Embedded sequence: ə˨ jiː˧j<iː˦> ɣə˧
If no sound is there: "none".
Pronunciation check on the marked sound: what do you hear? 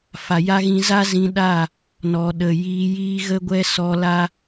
iː˦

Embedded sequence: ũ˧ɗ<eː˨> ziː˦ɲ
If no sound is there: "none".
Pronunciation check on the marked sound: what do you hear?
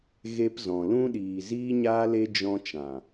iː˨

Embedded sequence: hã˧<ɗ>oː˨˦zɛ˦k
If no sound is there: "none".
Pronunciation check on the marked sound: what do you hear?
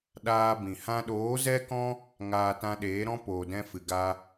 ɗ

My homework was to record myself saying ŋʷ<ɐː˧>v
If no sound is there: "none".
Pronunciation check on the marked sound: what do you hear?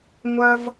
ɐ˧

